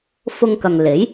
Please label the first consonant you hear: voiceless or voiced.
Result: voiceless